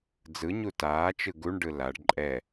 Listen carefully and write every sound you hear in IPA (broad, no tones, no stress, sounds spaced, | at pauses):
d͡z ɯ ɲ u t aː t͡ʃ ɯ ɡ u ɳ ɖ ɯ l a ɖ ǃʼ ɛ